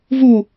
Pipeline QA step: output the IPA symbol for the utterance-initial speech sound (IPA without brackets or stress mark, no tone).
v